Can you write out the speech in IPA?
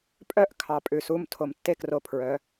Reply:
pʼœ˥ʔ kʰɑ˧˩pʼʉ˧˩su˥˧m tʰo˧˩mtːe˥kro˧ pʰɹœ˩˧

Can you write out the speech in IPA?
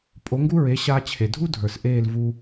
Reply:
pʼo˩˥ŋɡu˥ɹe˩˥ ɕa˧t͡ɕʰe˩dʱu˥ dʱə˞˩sʔeː˥˩l vu˧

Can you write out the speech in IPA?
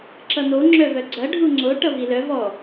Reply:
ǁʌn̪o ŋ͡ǁœvœɡ͡ǀɐ ɖʱuŋ͡ǀo ʈʌvilœ vɔ

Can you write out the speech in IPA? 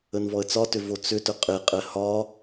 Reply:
ənvɔə̯t͡sɒtʏ vot͡sʏtʏ qʼeqʼɛ hɒ

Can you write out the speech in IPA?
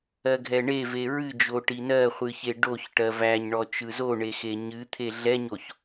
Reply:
ɜɡʱɛɳeve ɹɨd͡ʒo ʈinɜχʷɨ çeɖoçʈɜ væɲɳɔ t͡ʃɯzoɳe xeɲɨt̪ʰe ɮɛɲoç

